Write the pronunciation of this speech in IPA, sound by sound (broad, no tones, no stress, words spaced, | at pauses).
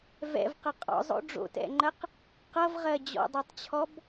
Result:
vɛ̰vqʌ qʼɔ̰zˤo̰ ɖ͡ʐo̰tɛ̰ŋ͡ǃɜq | qʌvʁɜ d͡ʑɔ̰dˤɜtˤt͡ɕʰɔb